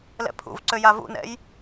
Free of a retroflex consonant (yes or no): yes